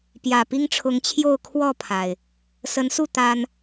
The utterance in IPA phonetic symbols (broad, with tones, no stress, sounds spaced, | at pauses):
p j ä˨˩ p i˦ ŋ ʈ͡ʂʰ ʊ˨˦ ŋ t͡ɕʰ j o˥˨ ʊ̯ kʰ w ɔ˥˨ pʰ a˩ ɪ̯ | s ə˨˦ n s u˥˨ t̪ a˦ n